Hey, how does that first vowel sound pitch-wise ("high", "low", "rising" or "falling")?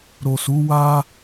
low